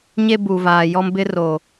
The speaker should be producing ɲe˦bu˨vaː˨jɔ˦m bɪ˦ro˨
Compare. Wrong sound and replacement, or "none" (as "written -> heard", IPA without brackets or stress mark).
none